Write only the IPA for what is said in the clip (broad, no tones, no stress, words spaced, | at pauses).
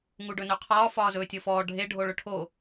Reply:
ŋuɖɵnɵqʰɒː fɒːzɵːtʲɤfɔː ɖʱe ɖʱoɭɵʈʰo